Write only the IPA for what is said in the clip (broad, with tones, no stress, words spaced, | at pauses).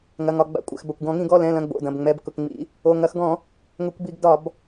ŋɐ˩˧˩ŋɒ˩˧˩ɡ͡ba̰˧˩˧kʷʼɛ̰˩˧˩x bɐ˩˧˩kʷɡɔ̃˧˩˧ŋĩ˧˩˧ ɡɔ˩˧˩lɛ̃˩˧˩lɐ̃˩˧˩ ɡ͡bo̰˩˧˩dɐ̃˩˧˩b ŋ͡mɛ˩˧˩bkʊ˩˧˩kŋ͡mḭ˧˩˧ | o˩˧˩ŋɐ˧˩˧x ɡɔ̃˧˩˧ | ŋʊ˧˩˧kʷbi˧˩˧ɡdɒ˧˩˧b